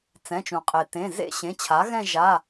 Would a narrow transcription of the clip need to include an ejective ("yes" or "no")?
yes